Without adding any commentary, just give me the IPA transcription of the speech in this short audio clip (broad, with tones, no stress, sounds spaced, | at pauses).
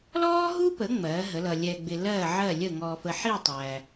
l ɔː˥ ɦ u˥ p ə˩˥ ŋ͡m ɜː˩˥ ɦ ə˩˥ l ʌ˨ lʲ ɛ˨ ɡ͡b ɪ˨ l ɜː˥˩ ʕ ɜ˥˩ lʲ ə˥˩ ŋ ɔː˨ f ə˨ ħ i˥˩ tˤ æ˨